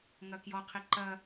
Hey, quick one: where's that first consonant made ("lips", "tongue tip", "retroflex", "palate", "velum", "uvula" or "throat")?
velum